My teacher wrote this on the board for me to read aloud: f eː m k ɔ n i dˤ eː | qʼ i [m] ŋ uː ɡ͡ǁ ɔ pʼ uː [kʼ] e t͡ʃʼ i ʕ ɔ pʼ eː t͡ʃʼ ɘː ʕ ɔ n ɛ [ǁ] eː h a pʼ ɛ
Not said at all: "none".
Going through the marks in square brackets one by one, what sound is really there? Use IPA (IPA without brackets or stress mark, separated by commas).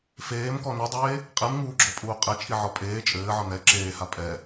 m, qʼ, ǁ